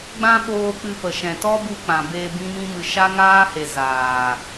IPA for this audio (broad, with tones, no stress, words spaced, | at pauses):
ɡ͡bã˦ɓoː˧ k͡pɨ˧pə˨ʃɛ̃˨ tɔ˦bu˧ k͡pã˨ be˧ bĩ˦mĩ˦mɨ˧ ʃa˦ŋaː˦he˨ zaː˨